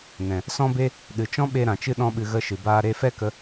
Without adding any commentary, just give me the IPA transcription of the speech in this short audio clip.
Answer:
n ɛ̃˨ | s ɔ̃˧ b e˧ | ɗ ɨ˨ t͡ʃ ɔ̃˦ ɓ e˧ ɾ ã˨ t͡ʃ ɨ˦ ɗ ɔ̃˦ ɓ ɨ˧ ɣ ə˧ ʃ ɨ˨ b aː˧ ɾ e˧ f ɛ˦ k ə˧

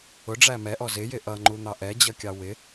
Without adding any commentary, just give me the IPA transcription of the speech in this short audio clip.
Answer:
ʊ ɖ͡ʐ æ m ɛ ʔ ɔ z ɪ j ɪ ʔ ʌ ŋ͡ǃ u n̪ ɑ ʔ ɛ d͡ʑ ʌ kʲ ɑ w ɪ

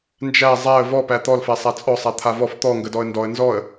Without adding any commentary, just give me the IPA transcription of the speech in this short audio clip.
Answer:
n d͡ʒ æ zˤ æ ə̯ v ɔ p æ t̪ ɔ l f æ sˤ æ t͡sʼ ɔ sˤ a t̪ʰ a v ɔ f t̪ ɔ ŋ ɡ ə d ɔ ə̯ n d ɔ ə̯ n z ɔ ə̯

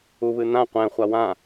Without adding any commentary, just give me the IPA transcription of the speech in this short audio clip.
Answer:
u β ɨ n̪ ã qʷ ɛ̃ χʷ a w ã

